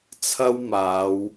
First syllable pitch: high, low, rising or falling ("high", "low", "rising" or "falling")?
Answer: high